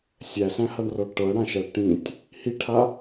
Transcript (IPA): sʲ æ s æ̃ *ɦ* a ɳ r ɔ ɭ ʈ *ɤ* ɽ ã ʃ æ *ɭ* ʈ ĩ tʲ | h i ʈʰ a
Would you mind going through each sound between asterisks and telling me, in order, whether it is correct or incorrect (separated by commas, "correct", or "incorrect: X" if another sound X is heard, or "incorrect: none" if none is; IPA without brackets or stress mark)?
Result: incorrect: h, correct, correct